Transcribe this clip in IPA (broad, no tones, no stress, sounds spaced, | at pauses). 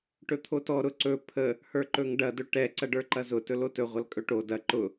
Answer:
ʈ ɵ t̪ʰ o t ɔ ɾ ʊ ǀ ɵ pʰ ə | h ə˞ ǃ ɵ ŋ ɖ ɐ d ɵ ʈ ɛ ǀ ɐ ɖ ə˞ ǃ ɐ z ʊ t ɵ l o t ɵ ʁʷ ɐ l kʼ ɵ ʈ o d ɐ ǃ ʊ